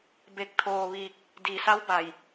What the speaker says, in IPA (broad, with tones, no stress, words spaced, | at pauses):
be˧˩k̚t̪ʰoː˧˩ʋiː˧˩k̚ | di˩ sa˧˥wba˩j